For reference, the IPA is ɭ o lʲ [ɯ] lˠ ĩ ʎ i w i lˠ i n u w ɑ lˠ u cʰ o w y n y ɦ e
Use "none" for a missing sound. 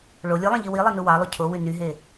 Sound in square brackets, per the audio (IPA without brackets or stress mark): ɯ